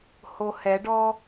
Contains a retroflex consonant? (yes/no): yes